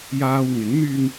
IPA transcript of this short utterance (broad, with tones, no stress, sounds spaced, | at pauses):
j aː˧ w ŋ ɪ˨˥ ŋ n̪ yː˧ ŋ